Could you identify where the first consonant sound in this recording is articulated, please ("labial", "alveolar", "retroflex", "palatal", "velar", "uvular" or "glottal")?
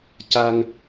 palatal